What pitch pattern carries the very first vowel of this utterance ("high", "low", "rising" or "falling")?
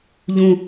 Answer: falling